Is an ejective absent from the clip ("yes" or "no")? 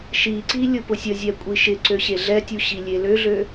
no